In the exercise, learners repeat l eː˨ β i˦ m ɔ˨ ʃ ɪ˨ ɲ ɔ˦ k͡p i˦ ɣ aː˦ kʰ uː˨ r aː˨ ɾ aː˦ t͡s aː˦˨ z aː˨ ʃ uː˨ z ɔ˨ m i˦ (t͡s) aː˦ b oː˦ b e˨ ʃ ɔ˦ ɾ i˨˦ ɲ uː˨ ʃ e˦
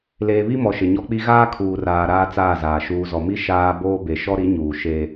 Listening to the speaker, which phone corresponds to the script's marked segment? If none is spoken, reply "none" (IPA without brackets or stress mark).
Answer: ʃ